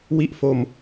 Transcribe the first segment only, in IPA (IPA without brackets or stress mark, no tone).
w